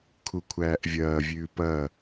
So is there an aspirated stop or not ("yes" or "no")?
yes